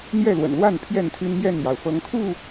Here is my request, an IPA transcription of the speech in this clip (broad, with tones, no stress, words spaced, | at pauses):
n̪jɛ˥˨lwə̰˨˩nlwa˥˨n pʰjɛ˥˨nt̪ʰy˦nmjɛ˥˨njɑ˩ʊ̯ fɤ˨˦ŋkʰu˥˨